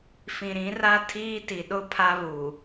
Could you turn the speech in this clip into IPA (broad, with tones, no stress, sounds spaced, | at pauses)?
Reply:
f ĩ˨ ɾ ĩ˨˦ r a˦ tʰ iː˦ t i˨ ɗ ʊ˦ pʰ a˦ β u˨